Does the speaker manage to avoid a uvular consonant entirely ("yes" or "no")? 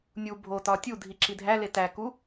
yes